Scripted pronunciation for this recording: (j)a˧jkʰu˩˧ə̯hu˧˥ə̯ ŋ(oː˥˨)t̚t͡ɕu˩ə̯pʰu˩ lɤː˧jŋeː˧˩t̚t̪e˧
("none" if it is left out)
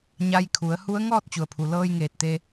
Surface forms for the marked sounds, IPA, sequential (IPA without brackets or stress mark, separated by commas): ɲ, ɔː˥˨